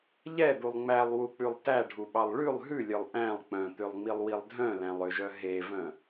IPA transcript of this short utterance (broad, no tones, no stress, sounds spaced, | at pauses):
ʎ ɛ d̪ u lˠ ŋ͡m æ lˠ w u k͡p ʉ lˠ t æ ɖʱ u ɓ ɑ lˠ ɭ ʉ lˠ ɦ ʉ lʲ œ lˠ ʔ æ̃ lˠ k͡p œ̃ t̪ ø lˠ ŋ͡m i lˠ w i lˠ dʱ œ̃ l æ̃ lˠ ø ʒ œ ɦ e v œ̃